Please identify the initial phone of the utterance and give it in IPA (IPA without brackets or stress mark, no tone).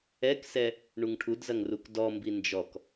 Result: ɛ